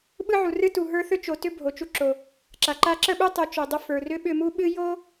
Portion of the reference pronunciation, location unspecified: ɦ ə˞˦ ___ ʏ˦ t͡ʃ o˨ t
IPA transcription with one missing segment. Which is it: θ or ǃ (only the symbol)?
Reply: θ